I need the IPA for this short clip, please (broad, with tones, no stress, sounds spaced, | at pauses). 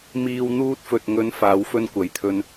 m iː˧ w n̪ uː˧ t̚ f ɵ˨ t̚ ŋ ɵ˨˧ n f aː˨˧ w f ɵ˧ n kʷ ɐ˨˧ j t̪ʰ ɵ˧ n